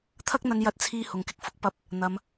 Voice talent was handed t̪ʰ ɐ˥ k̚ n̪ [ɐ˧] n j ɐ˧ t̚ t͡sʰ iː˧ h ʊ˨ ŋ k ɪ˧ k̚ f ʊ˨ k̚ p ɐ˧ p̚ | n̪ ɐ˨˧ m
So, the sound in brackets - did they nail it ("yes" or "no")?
yes